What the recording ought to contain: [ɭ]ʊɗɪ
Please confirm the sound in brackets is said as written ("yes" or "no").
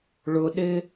yes